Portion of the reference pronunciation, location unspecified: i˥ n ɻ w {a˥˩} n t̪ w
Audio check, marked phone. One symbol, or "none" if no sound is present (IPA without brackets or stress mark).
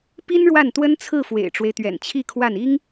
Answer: a˥˩